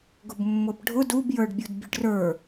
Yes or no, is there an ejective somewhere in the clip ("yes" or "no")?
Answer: no